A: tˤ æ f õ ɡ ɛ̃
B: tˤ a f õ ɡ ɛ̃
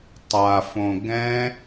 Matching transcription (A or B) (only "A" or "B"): B